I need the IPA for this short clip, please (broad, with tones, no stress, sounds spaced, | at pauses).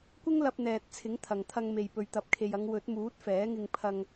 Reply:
kʷ ɪ˥ ŋ l ɐ˧ p̚ n̪ ɛː˨ t̚ t͡sʰ ɪ˨˥ ŋ t̪ʰ ɐ˨ ŋ t̪ʰ ɐ˧ ŋ m e˨ j p ɵ˨ ɥ t̪ ɐ˨ p̚ kʰ e˨ j ɐ˨˧ ŋ w ɵ˨˥ t̚ m uː˨˥ t̚ f ɛː˨˥ ŋ ɪ˧ ŋ pʰ ɐ˧ ŋ